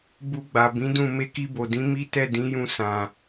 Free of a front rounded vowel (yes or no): yes